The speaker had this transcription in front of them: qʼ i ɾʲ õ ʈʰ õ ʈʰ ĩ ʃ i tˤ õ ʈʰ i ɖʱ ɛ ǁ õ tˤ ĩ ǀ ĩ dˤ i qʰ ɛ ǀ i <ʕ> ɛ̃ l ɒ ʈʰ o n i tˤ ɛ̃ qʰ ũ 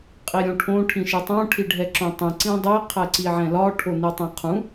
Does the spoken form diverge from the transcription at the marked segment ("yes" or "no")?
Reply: no